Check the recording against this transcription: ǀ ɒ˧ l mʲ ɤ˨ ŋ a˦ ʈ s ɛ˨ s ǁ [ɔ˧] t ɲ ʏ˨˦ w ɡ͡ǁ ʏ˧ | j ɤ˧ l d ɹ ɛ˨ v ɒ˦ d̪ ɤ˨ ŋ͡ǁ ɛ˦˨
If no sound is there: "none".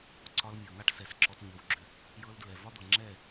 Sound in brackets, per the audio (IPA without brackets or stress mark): ɔ˧